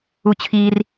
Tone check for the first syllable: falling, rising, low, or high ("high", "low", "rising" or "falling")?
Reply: high